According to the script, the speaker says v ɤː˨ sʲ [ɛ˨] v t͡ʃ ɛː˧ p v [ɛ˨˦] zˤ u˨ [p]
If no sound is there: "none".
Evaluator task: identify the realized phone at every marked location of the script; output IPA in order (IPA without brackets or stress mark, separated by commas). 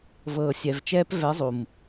ɛ˨, ɛ˨˦, m